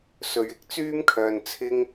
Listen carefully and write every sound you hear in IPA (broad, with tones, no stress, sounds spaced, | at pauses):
s ɵ˨ ɥ ɪ˧ k̚ t͡s yː˧ m kʰ œː˨ n t͡sʰ ɪ˧ ŋ